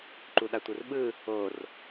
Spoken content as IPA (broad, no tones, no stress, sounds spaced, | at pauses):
ǃ u ɗ a tʷ ɯ r ɓ ɯ | o r